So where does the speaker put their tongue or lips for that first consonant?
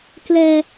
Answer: velum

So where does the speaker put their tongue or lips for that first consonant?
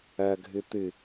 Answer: velum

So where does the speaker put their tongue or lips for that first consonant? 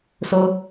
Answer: tongue tip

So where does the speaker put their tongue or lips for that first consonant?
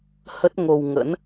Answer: throat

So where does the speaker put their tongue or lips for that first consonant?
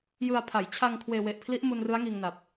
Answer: palate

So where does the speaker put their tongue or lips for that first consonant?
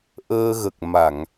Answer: throat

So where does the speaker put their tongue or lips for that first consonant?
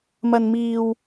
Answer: lips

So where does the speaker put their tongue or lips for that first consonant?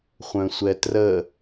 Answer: uvula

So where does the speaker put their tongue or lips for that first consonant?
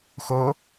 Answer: velum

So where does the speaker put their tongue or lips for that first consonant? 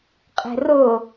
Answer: uvula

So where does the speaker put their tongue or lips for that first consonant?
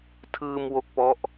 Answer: tongue tip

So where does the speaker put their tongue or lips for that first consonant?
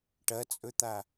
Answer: retroflex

